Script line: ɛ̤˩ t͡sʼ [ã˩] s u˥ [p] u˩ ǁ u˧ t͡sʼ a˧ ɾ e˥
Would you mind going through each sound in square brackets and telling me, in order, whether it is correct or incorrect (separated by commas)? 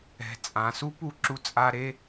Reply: correct, correct